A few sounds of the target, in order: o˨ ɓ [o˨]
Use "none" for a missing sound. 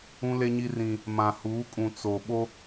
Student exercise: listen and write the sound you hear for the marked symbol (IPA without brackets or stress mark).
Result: o˦